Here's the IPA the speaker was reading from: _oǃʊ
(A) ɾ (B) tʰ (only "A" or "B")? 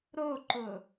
A